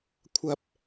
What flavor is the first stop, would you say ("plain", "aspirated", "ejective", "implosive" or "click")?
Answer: aspirated